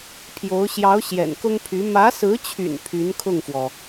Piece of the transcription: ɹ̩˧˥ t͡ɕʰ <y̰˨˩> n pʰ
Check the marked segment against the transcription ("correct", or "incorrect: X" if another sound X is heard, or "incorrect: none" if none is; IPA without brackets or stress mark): correct